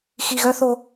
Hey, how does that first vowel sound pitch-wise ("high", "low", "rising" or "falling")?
low